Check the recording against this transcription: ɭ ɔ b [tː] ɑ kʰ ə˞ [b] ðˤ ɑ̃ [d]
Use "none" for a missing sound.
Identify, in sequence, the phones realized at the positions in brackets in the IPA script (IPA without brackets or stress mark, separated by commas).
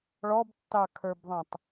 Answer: tː, b, tˤ